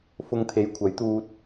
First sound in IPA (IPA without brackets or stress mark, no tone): f